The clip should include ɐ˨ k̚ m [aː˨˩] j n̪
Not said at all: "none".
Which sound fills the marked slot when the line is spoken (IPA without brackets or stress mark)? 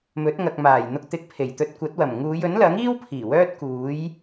aː˨˩